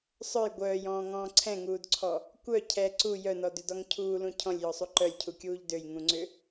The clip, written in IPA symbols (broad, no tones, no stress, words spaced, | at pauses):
sˤœj ɡʷœːjɔ̃ːŋɔ̃ː ǀʰɛ̃ŋuːdǀʰɔ | kʷœ cʰɛ ǀu jœnɔdʏdɔŋ cʰuːlũ cʰɔ̃lʲjɔsˤu ǃœlʲcʰukʲuːʎ døjŋũŋ͡ǀʏ